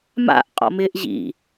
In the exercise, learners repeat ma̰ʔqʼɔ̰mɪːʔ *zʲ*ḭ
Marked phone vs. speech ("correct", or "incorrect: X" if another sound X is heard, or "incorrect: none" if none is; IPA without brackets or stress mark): incorrect: ʑ